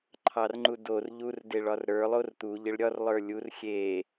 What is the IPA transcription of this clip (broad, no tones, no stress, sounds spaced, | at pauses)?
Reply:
ǃʰ ɑ r ŋ͡ǃ u d o r ʎ u r d e ɭ ɒ r ɾ ə˞ lˠ o r t̪ u ʎ ɪ ɭ ɾʲ ɒ r lˠ ə˞ lʲ u r xʲ e